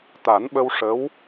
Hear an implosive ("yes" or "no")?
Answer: yes